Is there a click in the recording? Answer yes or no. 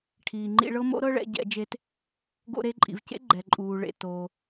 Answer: yes